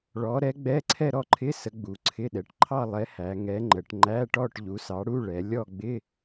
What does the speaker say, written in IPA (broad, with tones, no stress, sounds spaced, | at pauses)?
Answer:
ɭ ɔ˨˥ ɾ ɛ˨˥ ɡ͡b ɛ˧˥˧ ǀʰ ɛ˥˧ ɾ ɔ˥˧ ǃʰ ɪ˧˥˧ s ə˨˥ ɡ͡b u˩˧ ǀʰ ɪ˧˥˧ ɗ ɛ˩˧ ʈ ǃʰ ɑ˥˧ lˠ ɛ˨˥ h æ˩˧ ŋ ɛ˨˥ ŋ͡ǃ ə˩˧ ʈ ŋ͡ǃ æ˧˥˧ ʈ ɔ˥˧ ʈ ʎ u˨˥ s ɑ˨˥ ɽ u˧˥˧ ɭ ɛ˩˧ lʲ ɔ˥˧ ɡ͡b ɪ˧˥˧